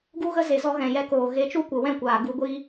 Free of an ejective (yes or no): yes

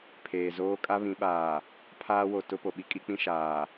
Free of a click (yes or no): yes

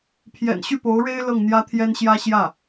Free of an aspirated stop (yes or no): no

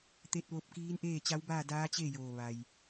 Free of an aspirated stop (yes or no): yes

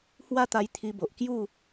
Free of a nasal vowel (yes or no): yes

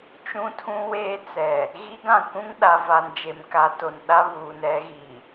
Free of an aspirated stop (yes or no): no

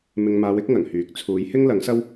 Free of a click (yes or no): yes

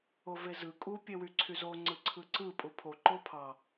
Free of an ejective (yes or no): no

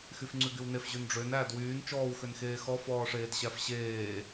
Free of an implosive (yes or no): yes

